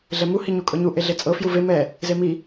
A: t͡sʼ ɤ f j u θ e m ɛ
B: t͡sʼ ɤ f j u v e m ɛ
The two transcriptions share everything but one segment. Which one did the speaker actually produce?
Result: B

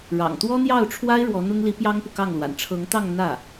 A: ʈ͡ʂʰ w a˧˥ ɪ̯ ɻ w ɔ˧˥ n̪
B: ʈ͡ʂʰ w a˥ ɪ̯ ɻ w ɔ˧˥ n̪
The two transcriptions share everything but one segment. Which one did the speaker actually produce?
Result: B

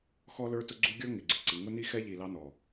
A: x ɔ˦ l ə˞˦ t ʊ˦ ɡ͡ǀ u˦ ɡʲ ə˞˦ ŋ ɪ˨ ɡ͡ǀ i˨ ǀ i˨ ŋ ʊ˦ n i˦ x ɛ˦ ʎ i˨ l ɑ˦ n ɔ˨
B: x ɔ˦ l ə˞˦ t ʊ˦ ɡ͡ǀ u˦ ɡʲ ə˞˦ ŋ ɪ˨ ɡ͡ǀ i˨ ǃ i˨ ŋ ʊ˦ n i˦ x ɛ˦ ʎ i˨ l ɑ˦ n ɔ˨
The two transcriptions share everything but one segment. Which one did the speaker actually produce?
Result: A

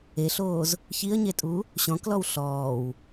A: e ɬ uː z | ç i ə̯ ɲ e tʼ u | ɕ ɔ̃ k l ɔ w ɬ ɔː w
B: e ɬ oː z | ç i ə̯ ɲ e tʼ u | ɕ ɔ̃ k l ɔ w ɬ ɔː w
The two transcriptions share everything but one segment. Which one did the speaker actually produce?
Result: B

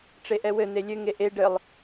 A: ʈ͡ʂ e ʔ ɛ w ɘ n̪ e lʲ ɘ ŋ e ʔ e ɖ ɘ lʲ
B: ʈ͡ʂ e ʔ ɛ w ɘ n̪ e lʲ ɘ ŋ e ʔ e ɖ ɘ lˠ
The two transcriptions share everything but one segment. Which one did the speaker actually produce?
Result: B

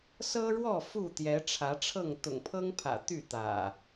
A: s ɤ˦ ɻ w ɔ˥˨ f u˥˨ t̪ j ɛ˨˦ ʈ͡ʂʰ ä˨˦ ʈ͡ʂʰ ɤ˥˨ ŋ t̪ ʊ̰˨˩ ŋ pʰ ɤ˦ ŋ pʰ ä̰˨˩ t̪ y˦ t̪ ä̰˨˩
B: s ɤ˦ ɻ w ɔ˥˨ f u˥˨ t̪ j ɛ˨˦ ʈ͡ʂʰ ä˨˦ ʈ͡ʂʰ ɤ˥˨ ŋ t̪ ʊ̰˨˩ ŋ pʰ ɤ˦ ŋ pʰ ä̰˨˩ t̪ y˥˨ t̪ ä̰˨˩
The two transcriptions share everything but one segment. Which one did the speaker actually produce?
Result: B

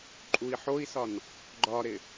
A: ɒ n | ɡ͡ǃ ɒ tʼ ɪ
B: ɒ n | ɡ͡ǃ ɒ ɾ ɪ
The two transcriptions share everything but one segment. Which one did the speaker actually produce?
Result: B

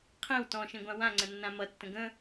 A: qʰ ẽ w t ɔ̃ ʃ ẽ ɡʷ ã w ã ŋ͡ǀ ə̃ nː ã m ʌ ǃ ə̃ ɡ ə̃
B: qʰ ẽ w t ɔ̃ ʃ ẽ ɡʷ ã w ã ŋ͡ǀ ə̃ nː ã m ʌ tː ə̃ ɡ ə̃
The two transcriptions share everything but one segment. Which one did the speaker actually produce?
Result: B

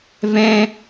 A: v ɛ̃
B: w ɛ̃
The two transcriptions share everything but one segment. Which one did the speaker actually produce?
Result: A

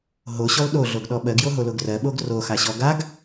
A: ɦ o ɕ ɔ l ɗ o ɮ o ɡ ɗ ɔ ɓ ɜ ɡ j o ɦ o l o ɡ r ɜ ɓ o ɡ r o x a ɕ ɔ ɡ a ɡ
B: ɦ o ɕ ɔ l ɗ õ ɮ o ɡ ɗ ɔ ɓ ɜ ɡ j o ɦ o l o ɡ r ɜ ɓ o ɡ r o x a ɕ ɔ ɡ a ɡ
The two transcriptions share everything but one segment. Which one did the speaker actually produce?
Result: A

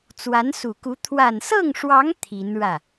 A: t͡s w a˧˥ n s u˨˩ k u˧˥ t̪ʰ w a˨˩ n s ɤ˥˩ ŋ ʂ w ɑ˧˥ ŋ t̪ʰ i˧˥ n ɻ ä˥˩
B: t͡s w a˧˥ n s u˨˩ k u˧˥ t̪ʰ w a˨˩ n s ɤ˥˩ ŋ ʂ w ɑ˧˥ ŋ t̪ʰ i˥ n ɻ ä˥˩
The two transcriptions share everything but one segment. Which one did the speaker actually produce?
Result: A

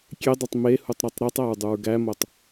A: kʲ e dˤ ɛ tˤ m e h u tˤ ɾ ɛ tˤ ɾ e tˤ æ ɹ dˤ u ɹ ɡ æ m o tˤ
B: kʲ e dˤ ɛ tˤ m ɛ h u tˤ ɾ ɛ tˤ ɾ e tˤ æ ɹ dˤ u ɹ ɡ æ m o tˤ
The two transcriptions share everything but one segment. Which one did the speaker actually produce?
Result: A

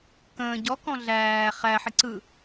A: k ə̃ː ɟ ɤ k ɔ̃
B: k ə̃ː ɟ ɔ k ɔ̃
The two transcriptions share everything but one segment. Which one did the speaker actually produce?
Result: B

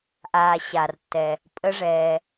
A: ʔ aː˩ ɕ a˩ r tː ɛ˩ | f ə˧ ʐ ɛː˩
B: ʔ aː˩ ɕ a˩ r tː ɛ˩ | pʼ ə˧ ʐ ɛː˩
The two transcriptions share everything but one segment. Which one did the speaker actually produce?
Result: B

